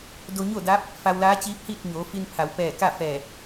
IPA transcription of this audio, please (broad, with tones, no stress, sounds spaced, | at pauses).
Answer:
d o˧ ɲ o˥˨ d aː˧˥ p̚ | f a˧ w l aː˧˥ t͡ɕ iː˧˥ p̚ h iː˥˨ t̚ ɲ oː˩˧ f i˧ n pʰ a˩˧ w p ɛː˧˩ k a˥˨ f ɛː˧˩